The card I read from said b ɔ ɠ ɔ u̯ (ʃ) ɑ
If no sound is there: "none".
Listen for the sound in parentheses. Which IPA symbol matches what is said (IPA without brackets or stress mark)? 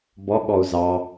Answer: z